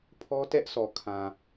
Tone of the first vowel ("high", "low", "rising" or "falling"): high